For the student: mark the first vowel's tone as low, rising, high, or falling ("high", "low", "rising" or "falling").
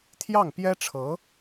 falling